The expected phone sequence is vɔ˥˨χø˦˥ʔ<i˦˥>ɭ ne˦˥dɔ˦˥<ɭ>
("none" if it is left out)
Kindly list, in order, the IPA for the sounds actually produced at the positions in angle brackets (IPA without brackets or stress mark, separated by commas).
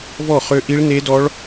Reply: i˦˥, ɭ